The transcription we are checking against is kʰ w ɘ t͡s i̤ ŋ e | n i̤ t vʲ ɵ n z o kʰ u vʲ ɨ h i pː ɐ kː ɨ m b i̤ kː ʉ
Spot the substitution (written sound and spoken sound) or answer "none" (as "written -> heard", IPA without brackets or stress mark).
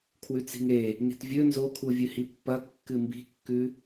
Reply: ɘ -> ʉ